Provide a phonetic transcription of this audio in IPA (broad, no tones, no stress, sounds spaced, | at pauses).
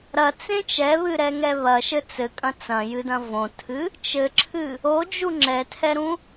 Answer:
ɾ ɐ t͡s ẽ t͡ʃ ɛ β ɨ ɾ ɛ ŋ ɛ β ɐ ʃ ɘ t͡s ɘ kʼ ɐ̃ t͡s ɐ̃ j ɨ d ɐ̃ v õ tʰ ɨ | t͡ʃ ɘ ǁʰ ɨ | o d͡ʒ u ŋ͡ǁ ɛ tʰ ɛ ɾ ũ